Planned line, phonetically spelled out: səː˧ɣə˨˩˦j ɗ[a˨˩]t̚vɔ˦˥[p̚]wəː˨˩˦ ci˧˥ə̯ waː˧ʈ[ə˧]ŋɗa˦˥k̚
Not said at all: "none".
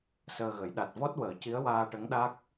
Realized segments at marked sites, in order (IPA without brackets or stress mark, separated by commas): a˨˩, t̚, ə˧˥